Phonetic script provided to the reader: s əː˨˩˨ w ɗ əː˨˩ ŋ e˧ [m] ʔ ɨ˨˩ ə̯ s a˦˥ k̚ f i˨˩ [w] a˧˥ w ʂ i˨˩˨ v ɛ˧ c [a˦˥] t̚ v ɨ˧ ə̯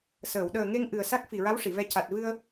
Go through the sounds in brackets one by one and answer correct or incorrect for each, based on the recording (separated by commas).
incorrect, incorrect, incorrect